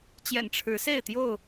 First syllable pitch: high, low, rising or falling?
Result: low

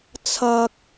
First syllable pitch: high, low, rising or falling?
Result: low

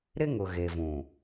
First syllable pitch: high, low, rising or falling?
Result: high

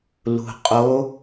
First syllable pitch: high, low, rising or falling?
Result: low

